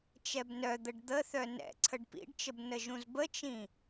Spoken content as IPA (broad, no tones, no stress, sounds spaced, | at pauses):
t͡ʃ ɛ b n œ d̪ ə ɖ d̪ ə θ œ n ɛ̰ ǀʰ ə ɖ p ḭ ɖ t͡ʃ ə b n ə ʒ ũ z b ə t͡ʃ ĩ